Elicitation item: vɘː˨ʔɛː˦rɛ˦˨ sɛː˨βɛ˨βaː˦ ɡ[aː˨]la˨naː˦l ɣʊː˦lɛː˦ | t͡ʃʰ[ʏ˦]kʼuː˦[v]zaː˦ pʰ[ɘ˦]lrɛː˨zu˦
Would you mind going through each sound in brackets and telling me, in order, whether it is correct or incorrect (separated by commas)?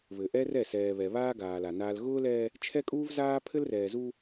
correct, incorrect, correct, correct